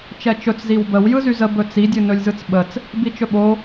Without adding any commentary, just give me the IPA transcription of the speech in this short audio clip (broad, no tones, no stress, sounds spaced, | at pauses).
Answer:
t͡ʃ ɛ t͡ʃ ɵ t͡s z i w b ə w j ɯ z y z ə b ɵ t͡s i dʲ ɨ n ɵ lʲ z ɯ t͡s ɓ ə t͡s | b i t͡ʃ ɵ ɓ o